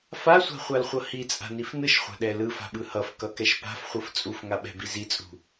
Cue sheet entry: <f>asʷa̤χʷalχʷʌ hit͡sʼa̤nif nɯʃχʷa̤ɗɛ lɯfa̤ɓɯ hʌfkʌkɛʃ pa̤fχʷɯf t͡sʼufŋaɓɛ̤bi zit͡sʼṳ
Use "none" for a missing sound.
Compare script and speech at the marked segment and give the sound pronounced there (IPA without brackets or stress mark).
f